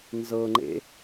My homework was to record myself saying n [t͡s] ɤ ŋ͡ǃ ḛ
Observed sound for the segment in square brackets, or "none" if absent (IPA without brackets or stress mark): z